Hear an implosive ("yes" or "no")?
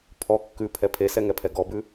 no